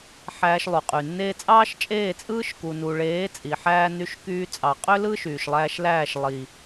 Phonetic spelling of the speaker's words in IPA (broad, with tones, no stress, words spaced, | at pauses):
ħæː˧ʃlˠu˨qʼy˨ nːeː˧t͡sʼɑː˦ʃ t͡ʃʼeː˦˨t͡sʼɯː˦ʃku˨ nu˨ɭeː˨˦ t͡sʼi˨ħæː˦ ny˧ʃ kyː˧t͡sʼɑ˨qʼø˦lɯ˦ ʃyː˨ʃlˠæː˧ʃlæː˦˨ʃlˠi˨